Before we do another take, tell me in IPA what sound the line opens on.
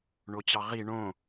ɳ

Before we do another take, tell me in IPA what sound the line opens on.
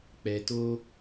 k͡p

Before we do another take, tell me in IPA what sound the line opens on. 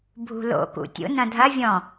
bʱ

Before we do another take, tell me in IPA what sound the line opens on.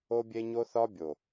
o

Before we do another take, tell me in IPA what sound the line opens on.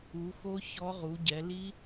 u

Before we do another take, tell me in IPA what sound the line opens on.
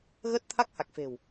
ɣ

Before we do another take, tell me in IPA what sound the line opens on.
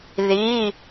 ð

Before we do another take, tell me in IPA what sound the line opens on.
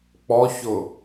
k͡p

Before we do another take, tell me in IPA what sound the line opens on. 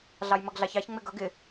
ɮ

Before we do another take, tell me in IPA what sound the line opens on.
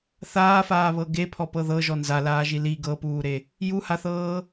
θ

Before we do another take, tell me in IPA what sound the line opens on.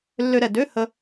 lː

